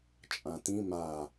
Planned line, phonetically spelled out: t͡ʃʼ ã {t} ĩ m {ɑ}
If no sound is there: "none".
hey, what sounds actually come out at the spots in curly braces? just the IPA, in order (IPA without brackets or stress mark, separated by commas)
t, a